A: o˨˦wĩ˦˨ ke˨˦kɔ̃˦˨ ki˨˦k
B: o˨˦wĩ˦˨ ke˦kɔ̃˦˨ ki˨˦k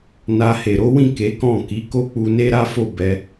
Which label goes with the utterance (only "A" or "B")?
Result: A